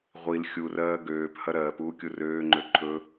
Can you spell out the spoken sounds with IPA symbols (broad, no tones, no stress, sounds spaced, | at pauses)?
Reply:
ʁʷ i l xʲ u r ɜː ɡ øː p h ɐ ɾ ɜː p uː kʲ u r øː ŋ͡ǃ ø ǃʰ ɵ